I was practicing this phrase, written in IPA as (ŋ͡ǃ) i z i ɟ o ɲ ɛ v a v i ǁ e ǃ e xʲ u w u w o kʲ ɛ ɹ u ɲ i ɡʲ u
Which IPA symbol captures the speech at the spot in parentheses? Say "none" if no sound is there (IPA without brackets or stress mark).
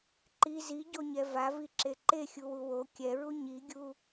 ǃ